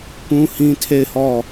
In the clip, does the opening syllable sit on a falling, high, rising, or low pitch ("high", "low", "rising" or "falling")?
high